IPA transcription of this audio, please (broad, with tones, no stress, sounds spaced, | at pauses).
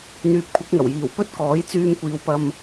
n̪ yː˨ p̚ kʷʰ ɐ˨˥ k̚ ŋ ɐ˨˩ w j iː˨˩ w p ɵ˥ t̚ k ɔː˨˥ j t͡s yː˧ m kʷ iː˨˧ w p ɐ˧ m